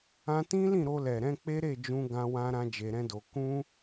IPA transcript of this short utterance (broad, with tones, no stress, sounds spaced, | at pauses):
ã˧ t ĩ˦ l ĩ˦˨ ɾ o˧ l ɛ˨ ɾ ɛ̃˧ k͡p e˦ ɾ e˦˨ d͡ʒ ũ˧ ɡ ã˦ w ã˦ ɾ ã˦ d͡ʒ e˧ ɾ ɛ̃˦ d o˧ k ũ˦